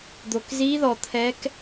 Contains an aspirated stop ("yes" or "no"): yes